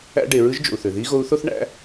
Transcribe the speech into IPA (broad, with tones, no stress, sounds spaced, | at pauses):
æ̰˥ ɖ e˩˧ ɹ ɯ˧˥ ʒ d͡ʒ o̰˩ u̯ θ ø˩ ð i˧˥ ɣ o˧˥ u̯ θ o˥ θ ɳ æ̰˧˥